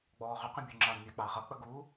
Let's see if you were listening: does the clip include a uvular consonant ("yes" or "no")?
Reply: yes